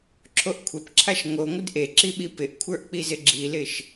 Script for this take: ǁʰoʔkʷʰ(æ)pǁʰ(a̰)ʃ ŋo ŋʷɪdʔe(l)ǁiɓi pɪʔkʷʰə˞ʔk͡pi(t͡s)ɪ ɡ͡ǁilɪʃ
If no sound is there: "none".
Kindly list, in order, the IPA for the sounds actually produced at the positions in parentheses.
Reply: ɛ, a, none, z

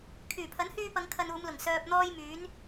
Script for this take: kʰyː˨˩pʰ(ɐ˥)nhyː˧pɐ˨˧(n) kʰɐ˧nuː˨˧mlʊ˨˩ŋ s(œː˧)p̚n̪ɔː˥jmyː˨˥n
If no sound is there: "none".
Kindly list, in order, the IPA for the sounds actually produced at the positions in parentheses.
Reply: ɐ˨˥, ŋ, œː˧

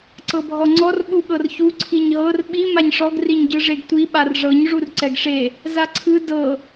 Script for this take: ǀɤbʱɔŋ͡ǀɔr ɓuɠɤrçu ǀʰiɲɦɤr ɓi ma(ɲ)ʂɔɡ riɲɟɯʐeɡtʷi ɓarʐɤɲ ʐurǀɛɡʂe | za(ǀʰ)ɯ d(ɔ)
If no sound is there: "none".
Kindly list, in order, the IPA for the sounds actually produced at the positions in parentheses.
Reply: ɲ, ǀʰ, ɤ

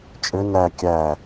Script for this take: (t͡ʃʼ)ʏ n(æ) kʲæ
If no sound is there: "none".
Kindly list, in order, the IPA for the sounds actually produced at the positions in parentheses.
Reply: t͡ʃʼ, æ

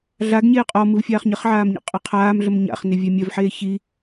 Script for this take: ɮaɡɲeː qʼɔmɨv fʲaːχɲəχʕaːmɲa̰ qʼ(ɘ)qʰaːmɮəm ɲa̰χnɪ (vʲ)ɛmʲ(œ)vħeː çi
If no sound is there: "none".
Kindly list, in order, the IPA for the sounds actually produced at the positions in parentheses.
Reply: ɘ, vʲ, œ

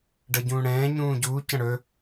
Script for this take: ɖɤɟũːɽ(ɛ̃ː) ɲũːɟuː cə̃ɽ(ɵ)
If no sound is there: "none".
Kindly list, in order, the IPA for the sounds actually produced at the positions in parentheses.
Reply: ɛ̃ː, ɵ

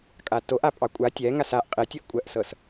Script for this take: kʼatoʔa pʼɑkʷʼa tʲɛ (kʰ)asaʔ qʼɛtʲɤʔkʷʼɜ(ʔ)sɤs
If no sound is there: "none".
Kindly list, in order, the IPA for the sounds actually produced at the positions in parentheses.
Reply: ŋ, ʔ

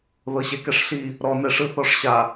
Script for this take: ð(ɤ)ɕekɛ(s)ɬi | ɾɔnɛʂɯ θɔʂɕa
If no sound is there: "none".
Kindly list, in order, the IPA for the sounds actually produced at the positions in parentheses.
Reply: ɤ, ʂ

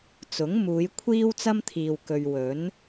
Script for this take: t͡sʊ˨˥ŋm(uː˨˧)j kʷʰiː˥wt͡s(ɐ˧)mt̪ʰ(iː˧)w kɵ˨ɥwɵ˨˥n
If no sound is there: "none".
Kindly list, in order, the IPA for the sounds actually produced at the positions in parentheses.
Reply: uː˨˧, ɐ˥, iː˨

